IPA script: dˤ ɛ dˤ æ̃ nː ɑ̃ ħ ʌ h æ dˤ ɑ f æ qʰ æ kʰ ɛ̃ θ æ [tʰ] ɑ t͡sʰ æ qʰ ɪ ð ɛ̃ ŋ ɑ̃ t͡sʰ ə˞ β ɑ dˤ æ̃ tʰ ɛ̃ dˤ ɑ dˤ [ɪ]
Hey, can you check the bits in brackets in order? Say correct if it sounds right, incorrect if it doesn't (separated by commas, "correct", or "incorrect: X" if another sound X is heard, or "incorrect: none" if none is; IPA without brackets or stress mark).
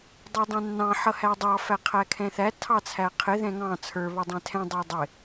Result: correct, correct